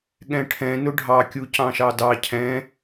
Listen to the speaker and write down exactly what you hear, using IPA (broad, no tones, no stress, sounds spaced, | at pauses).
ɠ ɛ̃ ʈʰ ɛ̃ n ʊ ɖʱ ɑ kʲ u c ɑ̃ ʃ ɑ d ɑ cʰ ɛ̃